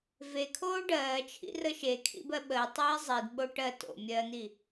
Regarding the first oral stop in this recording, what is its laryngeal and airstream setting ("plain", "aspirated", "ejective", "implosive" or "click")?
aspirated